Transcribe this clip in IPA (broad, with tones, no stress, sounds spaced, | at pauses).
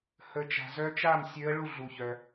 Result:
h ə˧˥ t͡ʃ a̤˨ z œ˧˥ t͡ʃ a˥˨ m sʲ ø˧˥ ə̯ ɭ u˥˨ ɮ u˨ ç œ˨